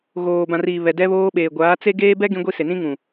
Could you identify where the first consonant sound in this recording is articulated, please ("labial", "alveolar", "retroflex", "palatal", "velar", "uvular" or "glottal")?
velar